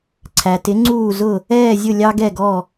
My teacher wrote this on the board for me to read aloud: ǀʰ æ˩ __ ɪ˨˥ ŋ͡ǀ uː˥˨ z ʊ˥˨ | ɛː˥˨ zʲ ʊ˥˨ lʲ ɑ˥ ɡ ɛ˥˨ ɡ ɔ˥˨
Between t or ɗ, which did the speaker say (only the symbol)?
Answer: t